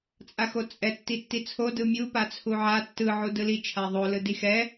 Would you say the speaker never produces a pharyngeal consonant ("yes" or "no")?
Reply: no